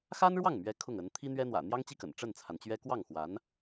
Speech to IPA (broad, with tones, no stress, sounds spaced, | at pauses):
x a˥ n ɻ w ɑ˥˩ ŋ m ɥ ɛ˧˥ kʰ ʊ˥˩ ŋ ə˧˥ n t̪ʰ i˥ n̪ ɥ ɛ˥ n̪ w ä̰˨˩ n̪ j ɑ˥ ŋ t͡ɕ i˥˩ k ə̰˨˩ n ʈ͡ʂ ə˥˩ n t͡sʰ a˩ n t͡ɕ ɥ ɛ˥ k w ɑ˥˩ ŋ x w a˧˥ n